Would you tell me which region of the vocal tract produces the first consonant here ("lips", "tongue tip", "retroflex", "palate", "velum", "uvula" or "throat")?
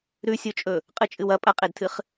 tongue tip